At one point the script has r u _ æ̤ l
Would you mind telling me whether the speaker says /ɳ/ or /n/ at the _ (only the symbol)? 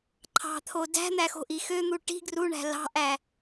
ɳ